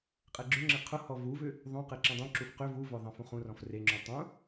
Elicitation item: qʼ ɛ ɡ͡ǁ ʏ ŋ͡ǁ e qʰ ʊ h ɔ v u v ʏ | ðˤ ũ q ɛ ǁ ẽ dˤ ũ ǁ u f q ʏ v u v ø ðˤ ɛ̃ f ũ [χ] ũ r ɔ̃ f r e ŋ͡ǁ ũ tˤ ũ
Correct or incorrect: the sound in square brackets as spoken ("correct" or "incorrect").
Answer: correct